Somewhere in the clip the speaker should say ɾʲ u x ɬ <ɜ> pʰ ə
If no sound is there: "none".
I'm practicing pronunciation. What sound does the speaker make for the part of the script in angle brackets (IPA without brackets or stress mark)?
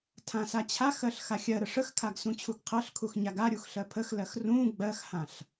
ɜ